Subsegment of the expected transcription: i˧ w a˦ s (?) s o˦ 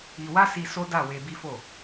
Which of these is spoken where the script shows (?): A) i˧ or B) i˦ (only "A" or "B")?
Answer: A